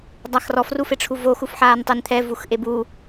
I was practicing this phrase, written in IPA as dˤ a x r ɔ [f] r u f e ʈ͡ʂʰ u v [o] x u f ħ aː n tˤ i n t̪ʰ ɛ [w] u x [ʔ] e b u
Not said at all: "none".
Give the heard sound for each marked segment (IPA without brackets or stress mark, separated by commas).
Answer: f, o, v, ʔ